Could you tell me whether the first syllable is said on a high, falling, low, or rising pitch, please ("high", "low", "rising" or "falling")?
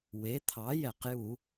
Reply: rising